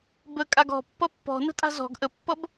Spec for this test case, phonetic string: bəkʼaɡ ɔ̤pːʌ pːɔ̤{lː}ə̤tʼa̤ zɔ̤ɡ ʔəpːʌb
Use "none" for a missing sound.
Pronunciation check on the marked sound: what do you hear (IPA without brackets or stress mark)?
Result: n